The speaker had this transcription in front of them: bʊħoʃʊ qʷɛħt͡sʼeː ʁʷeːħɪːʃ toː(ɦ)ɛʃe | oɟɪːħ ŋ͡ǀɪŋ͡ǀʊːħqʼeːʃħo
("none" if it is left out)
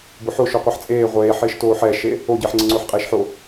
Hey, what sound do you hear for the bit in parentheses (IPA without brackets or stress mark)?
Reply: ħ